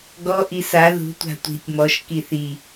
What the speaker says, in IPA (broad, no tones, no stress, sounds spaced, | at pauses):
ɡ ɔ ʔ i s a ð ṳ tʷ a̤ tʷ i̤ tʲ m ɔ ʃ k i θ i